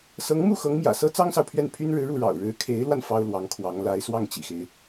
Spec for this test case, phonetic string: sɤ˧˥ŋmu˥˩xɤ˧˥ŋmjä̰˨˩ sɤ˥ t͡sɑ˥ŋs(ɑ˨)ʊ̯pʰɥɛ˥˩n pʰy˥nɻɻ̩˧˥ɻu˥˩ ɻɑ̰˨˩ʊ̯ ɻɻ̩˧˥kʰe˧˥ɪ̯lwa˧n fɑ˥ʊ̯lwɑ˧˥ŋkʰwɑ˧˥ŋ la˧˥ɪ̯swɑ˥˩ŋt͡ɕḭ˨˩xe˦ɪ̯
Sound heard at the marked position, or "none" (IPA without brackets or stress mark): ɑ˨